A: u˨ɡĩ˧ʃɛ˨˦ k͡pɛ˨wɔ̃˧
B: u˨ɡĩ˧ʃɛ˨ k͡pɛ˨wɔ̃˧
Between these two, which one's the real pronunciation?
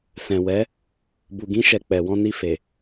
B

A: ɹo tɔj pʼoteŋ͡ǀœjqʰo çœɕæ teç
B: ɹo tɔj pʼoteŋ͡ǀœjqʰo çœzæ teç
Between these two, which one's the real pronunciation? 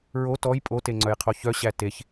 A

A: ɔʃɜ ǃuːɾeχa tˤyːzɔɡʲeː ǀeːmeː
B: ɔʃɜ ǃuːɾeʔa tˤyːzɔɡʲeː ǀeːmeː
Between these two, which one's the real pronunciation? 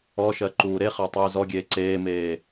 A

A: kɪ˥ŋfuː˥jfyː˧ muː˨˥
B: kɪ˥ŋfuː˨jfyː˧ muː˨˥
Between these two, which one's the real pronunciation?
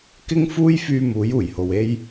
A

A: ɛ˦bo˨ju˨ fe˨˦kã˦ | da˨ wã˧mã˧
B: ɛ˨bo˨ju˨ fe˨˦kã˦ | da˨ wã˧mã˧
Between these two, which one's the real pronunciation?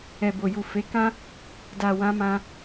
B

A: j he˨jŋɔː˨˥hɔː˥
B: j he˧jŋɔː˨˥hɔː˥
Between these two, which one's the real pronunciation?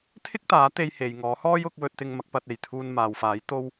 A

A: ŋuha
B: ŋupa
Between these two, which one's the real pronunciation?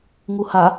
A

